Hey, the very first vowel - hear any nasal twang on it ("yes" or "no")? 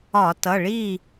no